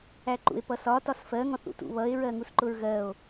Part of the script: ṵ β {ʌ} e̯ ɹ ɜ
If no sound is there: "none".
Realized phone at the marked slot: ʌ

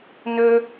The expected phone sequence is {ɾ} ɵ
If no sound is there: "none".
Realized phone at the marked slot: n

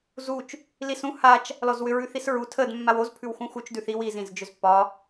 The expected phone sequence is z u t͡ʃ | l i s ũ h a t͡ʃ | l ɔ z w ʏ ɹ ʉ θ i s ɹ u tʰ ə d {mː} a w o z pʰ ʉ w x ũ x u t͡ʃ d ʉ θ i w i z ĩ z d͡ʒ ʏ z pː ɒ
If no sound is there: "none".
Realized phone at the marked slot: mː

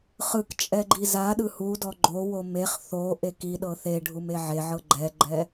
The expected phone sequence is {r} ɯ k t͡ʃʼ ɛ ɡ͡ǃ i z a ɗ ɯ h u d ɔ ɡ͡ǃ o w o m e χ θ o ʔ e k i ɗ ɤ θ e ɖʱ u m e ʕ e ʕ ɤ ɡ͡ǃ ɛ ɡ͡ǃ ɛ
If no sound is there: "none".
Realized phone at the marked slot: χ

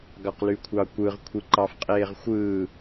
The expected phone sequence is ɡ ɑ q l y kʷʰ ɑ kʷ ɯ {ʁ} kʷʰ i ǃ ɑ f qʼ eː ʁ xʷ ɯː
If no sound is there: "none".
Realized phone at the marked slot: ʁ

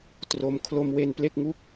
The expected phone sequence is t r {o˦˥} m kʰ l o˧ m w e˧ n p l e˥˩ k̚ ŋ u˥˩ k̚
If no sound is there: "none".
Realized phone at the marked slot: o˧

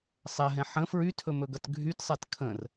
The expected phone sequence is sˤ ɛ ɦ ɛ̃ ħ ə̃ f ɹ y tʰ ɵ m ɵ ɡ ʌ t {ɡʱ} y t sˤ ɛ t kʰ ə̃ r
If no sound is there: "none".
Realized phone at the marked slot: ɡʱ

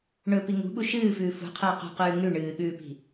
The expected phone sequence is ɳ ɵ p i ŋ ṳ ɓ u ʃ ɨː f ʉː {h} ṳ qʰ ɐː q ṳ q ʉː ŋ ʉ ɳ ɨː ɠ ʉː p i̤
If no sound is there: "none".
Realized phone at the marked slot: f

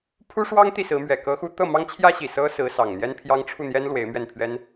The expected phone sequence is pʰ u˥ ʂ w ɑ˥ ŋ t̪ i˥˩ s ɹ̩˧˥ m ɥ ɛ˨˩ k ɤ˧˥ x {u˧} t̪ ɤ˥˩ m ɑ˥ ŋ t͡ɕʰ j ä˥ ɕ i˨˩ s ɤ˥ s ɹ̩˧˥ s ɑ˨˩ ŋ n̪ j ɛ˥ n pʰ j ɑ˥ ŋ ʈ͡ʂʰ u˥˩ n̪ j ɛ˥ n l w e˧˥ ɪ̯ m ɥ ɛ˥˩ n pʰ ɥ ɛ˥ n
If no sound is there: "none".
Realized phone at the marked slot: u˧˥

